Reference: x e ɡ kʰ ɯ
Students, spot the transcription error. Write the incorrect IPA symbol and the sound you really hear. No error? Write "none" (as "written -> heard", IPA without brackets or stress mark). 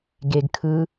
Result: x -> ɡ